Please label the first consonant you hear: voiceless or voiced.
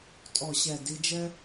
voiceless